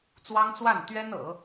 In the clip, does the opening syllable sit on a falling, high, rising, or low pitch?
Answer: high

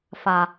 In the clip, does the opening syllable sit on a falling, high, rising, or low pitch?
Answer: low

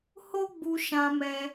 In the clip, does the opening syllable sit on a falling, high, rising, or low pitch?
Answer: high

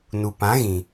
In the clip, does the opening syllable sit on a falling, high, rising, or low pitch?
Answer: low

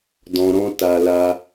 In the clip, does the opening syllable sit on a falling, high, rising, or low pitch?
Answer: low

